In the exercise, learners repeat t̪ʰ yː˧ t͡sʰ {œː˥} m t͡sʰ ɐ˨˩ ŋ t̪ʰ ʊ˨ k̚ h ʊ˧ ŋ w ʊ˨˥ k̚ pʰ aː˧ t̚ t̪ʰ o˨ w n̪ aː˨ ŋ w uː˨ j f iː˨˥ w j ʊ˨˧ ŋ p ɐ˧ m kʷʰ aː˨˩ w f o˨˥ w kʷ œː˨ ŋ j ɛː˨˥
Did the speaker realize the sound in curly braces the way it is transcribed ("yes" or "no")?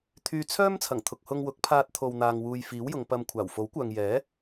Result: yes